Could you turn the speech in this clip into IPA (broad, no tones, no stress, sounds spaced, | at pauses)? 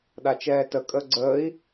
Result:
ɗ a t͡ʃ ɛː t ə kʼ əː ɡ͡ǀ əː i̯